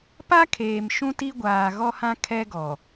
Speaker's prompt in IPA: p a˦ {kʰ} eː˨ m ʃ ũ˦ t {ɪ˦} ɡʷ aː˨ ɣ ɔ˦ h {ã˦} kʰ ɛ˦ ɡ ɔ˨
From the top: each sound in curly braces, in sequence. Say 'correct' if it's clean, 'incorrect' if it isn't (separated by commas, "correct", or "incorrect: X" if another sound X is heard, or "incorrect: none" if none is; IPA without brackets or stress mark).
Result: correct, incorrect: i˦, correct